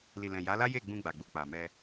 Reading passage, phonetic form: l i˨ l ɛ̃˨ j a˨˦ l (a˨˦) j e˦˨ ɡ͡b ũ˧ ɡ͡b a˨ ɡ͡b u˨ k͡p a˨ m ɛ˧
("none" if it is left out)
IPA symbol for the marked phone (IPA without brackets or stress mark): a˦